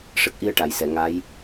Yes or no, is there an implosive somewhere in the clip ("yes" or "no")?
no